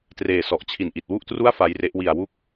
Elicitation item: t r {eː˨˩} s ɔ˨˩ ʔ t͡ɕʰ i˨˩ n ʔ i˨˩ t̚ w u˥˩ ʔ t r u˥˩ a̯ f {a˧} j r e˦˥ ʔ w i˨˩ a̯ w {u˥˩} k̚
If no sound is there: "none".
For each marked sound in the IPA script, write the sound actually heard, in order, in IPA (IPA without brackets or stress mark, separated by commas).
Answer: eː˨˩, a˦˥, u˦˥